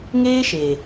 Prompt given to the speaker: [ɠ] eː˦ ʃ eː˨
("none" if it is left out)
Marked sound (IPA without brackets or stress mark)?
ŋ